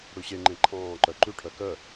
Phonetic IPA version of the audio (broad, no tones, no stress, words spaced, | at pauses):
ɽʉɕeŋ͡ǃẽ ǃʰɑ̃ːǃœ ǃʉʈʰœ kœ